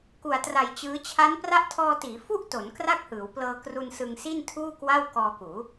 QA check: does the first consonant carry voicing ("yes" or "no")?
no